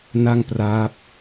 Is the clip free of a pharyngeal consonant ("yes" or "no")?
yes